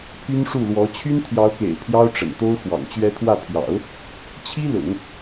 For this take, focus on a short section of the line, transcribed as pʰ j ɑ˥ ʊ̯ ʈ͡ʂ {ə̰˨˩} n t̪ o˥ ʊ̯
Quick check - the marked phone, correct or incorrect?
correct